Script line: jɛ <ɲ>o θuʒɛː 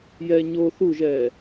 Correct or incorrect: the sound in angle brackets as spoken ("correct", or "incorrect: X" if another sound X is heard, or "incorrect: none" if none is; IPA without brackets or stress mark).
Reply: correct